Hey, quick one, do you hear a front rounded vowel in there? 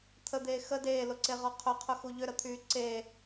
yes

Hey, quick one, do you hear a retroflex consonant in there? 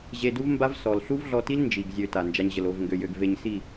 no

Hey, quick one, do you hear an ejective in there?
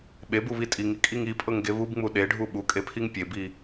yes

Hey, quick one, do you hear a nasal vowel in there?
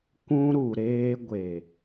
yes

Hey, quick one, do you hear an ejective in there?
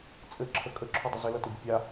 yes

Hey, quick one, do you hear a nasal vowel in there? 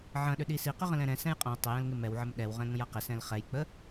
yes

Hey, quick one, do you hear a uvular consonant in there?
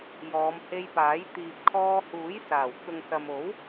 no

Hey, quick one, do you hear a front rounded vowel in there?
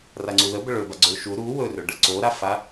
yes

